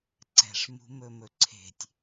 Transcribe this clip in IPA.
ǀ ɛ̤ ʂ m ṳ m ɵ m ɵ ǀʰ e̤ tʲ

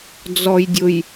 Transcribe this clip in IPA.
d͡z ɔ˨ j dʲ ʊ˨ j

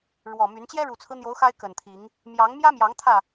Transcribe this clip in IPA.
ɻ w ɔ˨˩ m y˨˦ n t͡ɕ j ɛ˦ ɻ u˨˩ t͡sʰ ɹ̩˦ n̪ j o˨˦ ʊ̯ x a˦ ɪ̯ k ə˨˩ n t̪ʰ i˨˦ ŋ | m j ɑ˨˦ ŋ m j ä˦ m j ɑ˨˦ ŋ t̪ʰ ä˥˨

